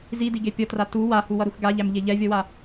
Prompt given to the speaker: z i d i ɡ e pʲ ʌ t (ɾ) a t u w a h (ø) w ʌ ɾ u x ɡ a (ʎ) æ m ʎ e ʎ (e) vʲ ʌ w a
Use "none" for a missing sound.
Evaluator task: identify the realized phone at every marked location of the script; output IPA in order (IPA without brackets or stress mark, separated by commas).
r, u, ʎ, ɛ